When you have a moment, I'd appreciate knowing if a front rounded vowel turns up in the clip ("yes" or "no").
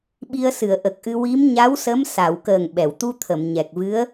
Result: no